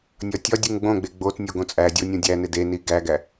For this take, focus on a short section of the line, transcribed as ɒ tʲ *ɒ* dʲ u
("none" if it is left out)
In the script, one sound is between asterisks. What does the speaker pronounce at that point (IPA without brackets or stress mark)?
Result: ɒ